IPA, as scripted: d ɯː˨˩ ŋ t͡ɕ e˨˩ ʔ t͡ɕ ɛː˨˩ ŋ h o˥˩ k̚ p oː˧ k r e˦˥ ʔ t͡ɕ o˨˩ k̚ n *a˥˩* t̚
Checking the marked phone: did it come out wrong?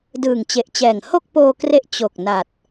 yes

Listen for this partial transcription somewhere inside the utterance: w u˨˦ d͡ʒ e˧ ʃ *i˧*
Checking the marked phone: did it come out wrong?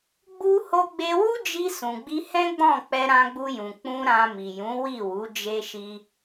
no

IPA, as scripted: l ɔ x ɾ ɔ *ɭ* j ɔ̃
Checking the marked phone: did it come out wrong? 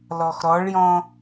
no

